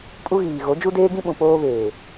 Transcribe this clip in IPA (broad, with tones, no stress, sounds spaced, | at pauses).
kʼ u˦ ɣ iː˨ ɣ o˨˦ d͡ʒ u˦ d eː˦ ɡ ĩ˦ ɓ ũ˨ p oː˦ β eː˨